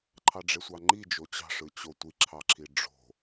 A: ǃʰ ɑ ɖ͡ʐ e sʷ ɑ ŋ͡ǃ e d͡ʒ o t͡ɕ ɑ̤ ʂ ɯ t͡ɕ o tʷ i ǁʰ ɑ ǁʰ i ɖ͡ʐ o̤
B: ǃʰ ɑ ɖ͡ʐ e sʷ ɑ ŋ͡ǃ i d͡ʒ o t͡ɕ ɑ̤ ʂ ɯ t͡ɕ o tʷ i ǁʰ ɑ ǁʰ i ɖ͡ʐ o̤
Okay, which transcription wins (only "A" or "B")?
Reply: B